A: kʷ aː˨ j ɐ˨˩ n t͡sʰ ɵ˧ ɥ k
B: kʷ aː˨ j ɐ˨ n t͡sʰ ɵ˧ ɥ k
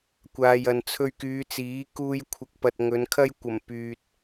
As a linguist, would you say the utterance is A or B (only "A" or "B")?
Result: B